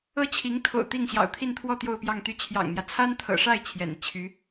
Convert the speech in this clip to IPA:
ɤ˥ t͡ɕʰ i˧˥ ŋ t̪ʰ o̰˨˩ ʊ̯ t̪ i˥˩ ŋ ɕ j ɑ̰˨˩ ʊ̯ t̪ʰ i˥˧ n t̪ʰ w ɔ˥˧ t̪ j o˥˧ ʊ̯ p j ɑ˥˧ ŋ t̪ y˥˩ t͡ɕʰ j ɑ̰˨˩ ŋ n̪ j ä˦ t͡sʰ a˥ n t̪ʰ ɤ̰˨˩ ʂ a˥˩ ɪ̯ t͡ɕʰ j ɛ̰˨˩ n i˦ t͡ɕʰ y˧˥

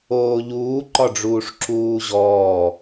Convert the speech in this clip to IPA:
oː ʎ uː ǃ ɒ ɖ͡ʐ uː ʂ ǁ uː ʑ ɔː

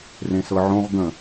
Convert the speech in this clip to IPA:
r ẽ s ɤ ʕ õ ʁ ɡ ə̃

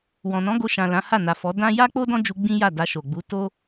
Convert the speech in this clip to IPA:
w ɔ̃˨ n ɔ̃˨˦ ɡ o˧ ʃ ã˨ l ã˨˦ h a˦˨ n a˨ f ɔ˨˦ d ã˦ j a˦ k͡p o˦ d ɔ̃˦ d͡ʒ u˧ ɡ͡b ĩ˦ j a˦˨ d a˧ ʃ o˨ ɡ͡b u˨˦ t o˦

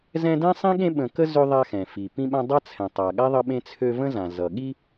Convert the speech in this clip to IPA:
z ɛ̃˦ d ɛ̃˥ sˤ ĩ˥ ɠ ẽ˦ ɓ ə̃˨ k ə˦ z ø˦ ðˤ a˦ x ɛ̃˩ f i˩ p ĩ˦ ɓ ã˦ dˤ a˦ t͡sʰ ɛ̃˩ tˤ a˩ ɠ a˥ ðˤ ʌ˦ ɓ ẽ˦ t͡sʰ ø˦ v ə̃˦ z ã˩ z ʌ˩ ɠ i˦

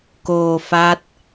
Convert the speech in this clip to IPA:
k oː˧ f a˦˥ t̚

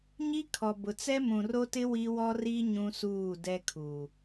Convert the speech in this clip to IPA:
ɲ i˦ kʰ ɔ˨ b ʊ˨ t͡s ɛ˦ m ũ˨ r o˦ t ɪ˦ w i˦ w ɔ˦ r i˦ ɲ ũ˦ s uː˦˨ d ɛ˦ kʰ uː˨

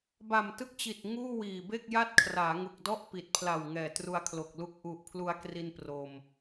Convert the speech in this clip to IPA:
b a˨˩ m t ɯ˦˥ k̚ t͡ɕ i˨˩ t̚ ŋ uː˥˩ w iː˨˩ b e˥˩ k̚ j a˥˩ t̚ kʰ r aː˩˦ ŋ u˨˩ k̚ d ɔ˥˩ ʔ p i˨˩ t̚ pʰ l a˨˩ w ŋ ɛː˨˩ t r u˧ a̯ kʰ l o˨˩ k̚ l u˦˥ k̚ ʔ u˨˩ ʔ pʰ l u˧ a̯ k r i˧ n p r o˧ m

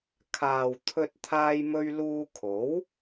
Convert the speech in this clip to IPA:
kʰ aː˨ w t̪ʰ ɵ˧ t̚ t̪ʰ aː˧ j m ɵ˧ ɥ l uː˧ kʰ o˨˥ w

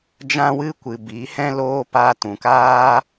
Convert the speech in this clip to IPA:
d͡ʒ ã˦ w ɨ˦ kʷ ɨ˨ b i˨˦ h ɛ̃˦ l oː˦ p a˧ t ũ˨ k aː˦

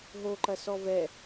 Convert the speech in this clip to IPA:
ɦ o ǃ ɐ s ɔ v ɛ

